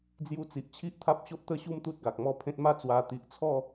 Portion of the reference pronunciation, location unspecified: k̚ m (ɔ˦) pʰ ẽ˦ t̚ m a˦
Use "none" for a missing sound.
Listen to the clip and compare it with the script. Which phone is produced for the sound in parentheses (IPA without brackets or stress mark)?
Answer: ɔ˥˧